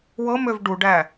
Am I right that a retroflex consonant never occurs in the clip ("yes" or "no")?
no